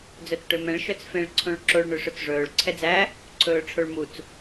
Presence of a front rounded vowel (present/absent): present